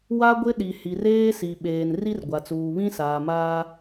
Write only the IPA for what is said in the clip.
w a˦ ɡʷ ɪ˦ ɗ i˨ h i˨ r eː˦ s i˨ ɓ eː˨ n r i˦ r ɡʷ a˨ t͡s uː˨ β ĩ˦ s aː˨ m aː˦

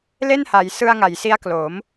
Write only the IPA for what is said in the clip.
l e˥˩ n h a˩˦ j s ɯ˧ a̯ ŋ a˩˦ j s i˦˥ a̯ k l o˩˦ m

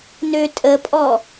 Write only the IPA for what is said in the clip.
n ø tʼ ə pʼ ɔ

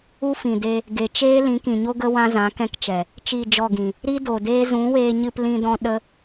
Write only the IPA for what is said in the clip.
u˦ f ĩ˨ d e˧ | ɡ e˨ t͡ʃ eː˦ l ĩ˨˦ k ĩ˨ ɲ o˦ ɡ ə˦ w ã˦ z ã˨˦ k ɛ̃˦ k t͡ʃ ɛ˨ | t͡ʃ i˦˨ d͡ʒ ɔ˦˨ ɡ ĩ˨ | ɾ i˦ d o˨ d eː˦ z ũ˨˦ w eː˧ ɲ ɨ˧ p l ĩ˧ d ɔ̃˧ ɗ ə˦

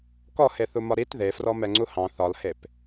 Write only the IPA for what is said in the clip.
k ɔ h e θ u m ɒ ɾ i t ð e f r ɔ m ɛ ŋ͡ǀ u h ɑ̃ θ ɒ l h e p

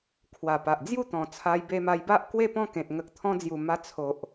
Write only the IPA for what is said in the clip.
kʰ w a˨˩ p a˨ ʔ d͡z j u˥˧ t̪ ɔ̃˨˩ t͡sʰ a˧ j b e˧ m a˧ j b a˦ ʔ k w e˥˧ p ɔ̃˦ k ẽ˨ t̚ ŋ ə˨ k̚ t̪ʰ ɔ̃˧ d͡z j u˨˩ m a˧ t͡sʰ o˨ ʔ

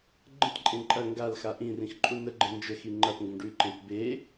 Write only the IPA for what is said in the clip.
ɡ͡ǃ ə̃ t ǃʼ ẽ ǃʼ ɐ ŋ ɡ a l x a ʔ ĩ r ĩ x ǃʼ u n ə ɡ͡ǃ ə̃ n d͡ʒ ə x i ŋ͡ǃ ɐ p ŋ ɡ ə̃ ɖ ʉ ǃ ẽ p b e

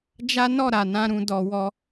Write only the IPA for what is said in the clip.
d͡ʒ a˦ n ɔ˦˨ ɾ a˨ n ã˧ ɾ ũ˨ d ɔ˨ w ɔ˧

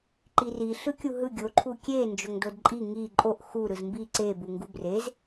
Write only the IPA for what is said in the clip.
ǃ i r i ɬ ɯ kʲ u ɦ ɯ ɡʲ o ǃʰ u kʲ e n d͡ʒ o ŋ d o d ǃʼ i ŋ i ǃʼ o ʔ x u ɾ ɯ z m b i ǀ e b u ŋ ɡ u b r e z

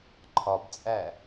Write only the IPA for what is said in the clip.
ǃʰ ɒ b t͡sʼ æ

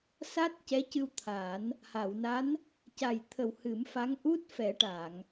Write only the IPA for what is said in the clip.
s a˦˥ t̚ c ɛ˧˥ c ɨ˧ w t̪ʰ a˨˩˦ n | h a˨˩˨ w n a˧˥ n | c a˨˩ j t̪ʰ ə˨˩ w h ɨ˨˩˦ m f a˧˥ ŋ ʔ u˦˥ t̚ f ɛ˨˩˦ ʈ a˨˩˨ ŋ

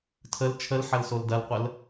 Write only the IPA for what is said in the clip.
tʰ ə l t͡ʃʰ ə l ħ ɐ l s o l d ɐ l qʷ ə l

